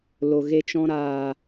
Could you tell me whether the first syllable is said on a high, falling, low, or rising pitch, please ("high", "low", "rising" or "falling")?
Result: low